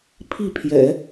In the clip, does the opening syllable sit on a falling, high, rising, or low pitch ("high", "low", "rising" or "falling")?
falling